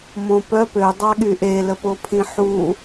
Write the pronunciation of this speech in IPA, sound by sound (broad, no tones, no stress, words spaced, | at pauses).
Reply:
mõpœ pødˤaɠy ʔeləpopʰĩ ħu